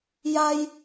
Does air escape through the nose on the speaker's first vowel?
no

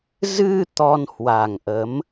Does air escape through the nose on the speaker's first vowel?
no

